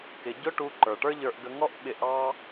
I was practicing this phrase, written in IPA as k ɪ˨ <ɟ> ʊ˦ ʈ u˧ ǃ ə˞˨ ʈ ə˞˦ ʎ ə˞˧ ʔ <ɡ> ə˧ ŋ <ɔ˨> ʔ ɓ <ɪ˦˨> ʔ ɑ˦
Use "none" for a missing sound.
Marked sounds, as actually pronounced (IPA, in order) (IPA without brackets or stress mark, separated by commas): ɟ, ɡ, ɔ˦, ɪ˧